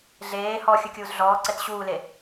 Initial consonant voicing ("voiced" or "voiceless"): voiced